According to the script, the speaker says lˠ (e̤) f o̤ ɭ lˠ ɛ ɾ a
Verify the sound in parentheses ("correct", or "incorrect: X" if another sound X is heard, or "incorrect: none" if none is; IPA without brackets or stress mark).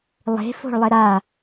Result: correct